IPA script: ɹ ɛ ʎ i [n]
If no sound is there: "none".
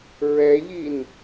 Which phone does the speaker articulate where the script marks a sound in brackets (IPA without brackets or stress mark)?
n